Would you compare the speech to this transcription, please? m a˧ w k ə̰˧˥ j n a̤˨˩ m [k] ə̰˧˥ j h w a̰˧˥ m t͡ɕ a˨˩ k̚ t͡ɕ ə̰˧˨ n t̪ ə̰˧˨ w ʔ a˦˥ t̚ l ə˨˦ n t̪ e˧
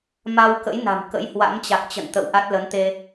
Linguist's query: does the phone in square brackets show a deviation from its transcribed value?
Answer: no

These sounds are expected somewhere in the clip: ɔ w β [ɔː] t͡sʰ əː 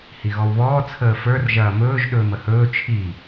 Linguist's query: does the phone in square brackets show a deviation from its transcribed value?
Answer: no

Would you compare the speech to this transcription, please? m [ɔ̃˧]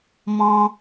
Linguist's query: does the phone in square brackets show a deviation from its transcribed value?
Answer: no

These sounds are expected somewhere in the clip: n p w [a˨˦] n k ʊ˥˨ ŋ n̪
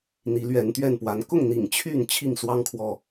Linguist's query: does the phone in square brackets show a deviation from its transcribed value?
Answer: no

